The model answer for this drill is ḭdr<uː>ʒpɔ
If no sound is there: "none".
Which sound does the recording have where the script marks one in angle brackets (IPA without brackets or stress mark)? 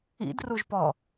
u